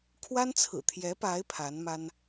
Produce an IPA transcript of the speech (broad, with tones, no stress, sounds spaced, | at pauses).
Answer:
kʰ w a˥ n t͡sʰ ɹ̩˨˩ t̪ʰ j ɛ˧˥ p a˧˥ ɪ̯ pʰ a˧˥ n m a˥ n